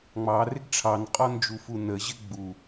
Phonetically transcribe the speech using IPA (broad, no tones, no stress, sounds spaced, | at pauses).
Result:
ŋ͡m ɑ r ɪ ɡ ʈ͡ʂʰ ɑ n qʼ ɔ n d͡ʒ u f u n ə ʑ ɪ ɡ͡b u